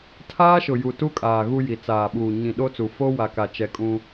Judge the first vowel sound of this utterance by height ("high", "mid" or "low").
low